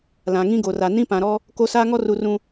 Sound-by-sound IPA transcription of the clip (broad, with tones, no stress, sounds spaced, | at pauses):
l ã˨ ŋ ĩ˦ ɡ o˨ r a˨ n ĩ˦ p ã˨ ɾ ɔ˦ | k o˦ s aː˦ ŋ ɔ˦ r u˨ r ũ˨